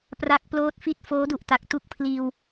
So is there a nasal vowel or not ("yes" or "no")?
no